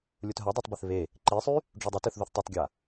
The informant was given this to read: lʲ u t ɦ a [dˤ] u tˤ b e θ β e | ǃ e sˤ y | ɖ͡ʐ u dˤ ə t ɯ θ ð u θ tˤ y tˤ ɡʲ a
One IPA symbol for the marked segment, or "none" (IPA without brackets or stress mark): dˤ